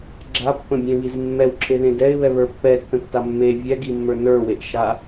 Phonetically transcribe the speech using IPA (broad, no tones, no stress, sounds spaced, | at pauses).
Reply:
ɡ͡ǁ a pː ə̃ bʲ ẽ β i z mː ɛ w ǁʰ e ð ẽ d ɛ ɪ̯ β ɛ β ə˞ pː ɛ tː ə̃ tː a mː e vʲ ɛ ɡ i mː ə˞ n ə˞ w e ʔ ʃ a